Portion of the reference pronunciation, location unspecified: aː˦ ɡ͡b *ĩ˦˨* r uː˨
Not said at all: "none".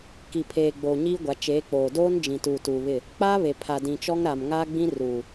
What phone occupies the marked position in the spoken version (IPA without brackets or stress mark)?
ĩ˦